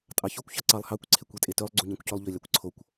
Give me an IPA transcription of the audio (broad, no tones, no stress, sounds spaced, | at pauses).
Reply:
tʼ ɑ ç o kʷ ç ɑ ǀ ɑ lˠ h ɑ kʷ ǀʰ e kʷ i tʼ e t ø lˠ ɡ͡ǀ u ɲ æ̃ kʷ c ø lˠ ʎ ø lʲ ɑ kʷ ǀʰ o kʷ